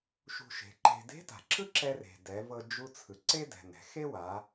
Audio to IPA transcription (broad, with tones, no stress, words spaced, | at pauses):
ʃṳ˧ʃe̤˩˧ǃe̤˧ de̤˧˥ta̤˩ ǁɯ˥ǁɛ˧re̤˩ dɛ˩˧vɤ˧ d͡ʒu˧t͡sʰɯ˩ ǀe˥dɛ̤˩ nɛ̤˩˧ xe˥wa˩˧